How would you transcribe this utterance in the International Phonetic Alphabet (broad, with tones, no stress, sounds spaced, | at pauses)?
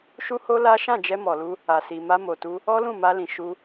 ʃ u˦ h o˦ l a˦ ʃ ã˦˨ d͡ʒ ɛ˧ m ɔ˨ l u˧ | a˨ s i˨ m a˧ m o˨ t u˧ | ɔ˦ l ũ˦˨ m a˧ l ĩ˨ ʃ u˧